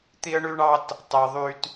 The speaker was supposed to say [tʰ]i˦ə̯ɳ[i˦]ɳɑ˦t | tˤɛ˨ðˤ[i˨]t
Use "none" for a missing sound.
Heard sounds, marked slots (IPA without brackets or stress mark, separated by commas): t̪, y˦, y˨